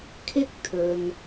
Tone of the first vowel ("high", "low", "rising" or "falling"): high